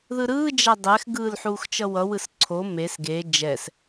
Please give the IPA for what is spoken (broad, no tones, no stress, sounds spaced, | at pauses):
ð ɯ ɾ ɯː d͡ʒ a dˤ ɛ x ɡ ɯː l ħ uː x t͡ʃ ʌ w ʌ w ɯ s ǀʰ o m e s ɡ e d͡ʒ ɛ s